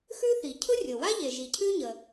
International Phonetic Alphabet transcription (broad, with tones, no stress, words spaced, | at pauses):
xʉ˥θi˩ cʰʊ˥rʲo˩wa˥ ʎe˩ʒi˩ cʰʉ˥ɲə˩